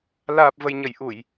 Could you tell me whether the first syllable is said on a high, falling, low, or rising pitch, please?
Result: low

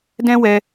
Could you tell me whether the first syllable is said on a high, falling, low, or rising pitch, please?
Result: high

